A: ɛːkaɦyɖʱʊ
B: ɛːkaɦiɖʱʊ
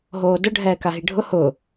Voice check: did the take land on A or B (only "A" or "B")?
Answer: B